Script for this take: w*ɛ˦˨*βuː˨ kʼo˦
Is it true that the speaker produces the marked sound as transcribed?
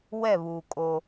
yes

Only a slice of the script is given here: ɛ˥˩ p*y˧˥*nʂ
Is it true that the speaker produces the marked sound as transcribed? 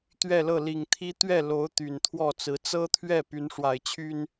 yes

